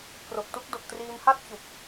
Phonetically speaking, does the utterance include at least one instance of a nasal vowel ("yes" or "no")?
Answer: no